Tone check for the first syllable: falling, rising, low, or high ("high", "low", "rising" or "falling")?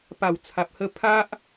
low